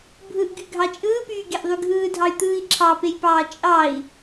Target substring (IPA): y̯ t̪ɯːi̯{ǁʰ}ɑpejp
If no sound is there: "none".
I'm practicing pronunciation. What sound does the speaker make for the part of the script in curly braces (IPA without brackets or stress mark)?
ǁʰ